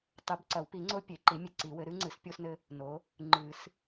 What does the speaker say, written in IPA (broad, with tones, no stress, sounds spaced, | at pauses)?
tˤ ɨ˨˩˦ b ǀ ɐ˨˩˦ w p i˨˩˦ ŋ͡ǀ o˦ pʲ e˨˩˦ ǃ i˨˥ mʲ e˦ ǀ i˨˩˦ w ɘ˨˥ ɾ ɨ˨˥ ŋ͡ǀ ɨ˨˩˦ s pʲ o˦ s n ɘ˦ | n o˨˥ | ŋ͡ǃ ɨ˨˩˦ s